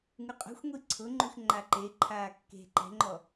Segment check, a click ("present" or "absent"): present